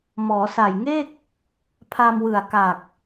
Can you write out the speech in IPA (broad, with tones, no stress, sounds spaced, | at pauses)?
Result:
m ɔː˩˦ s a˨˩ j ŋ e˥˩ k̚ | pʰ a˧ m w ɯ˨˩ a̯ k a˨˩ k̚